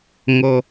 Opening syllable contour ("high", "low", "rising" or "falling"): low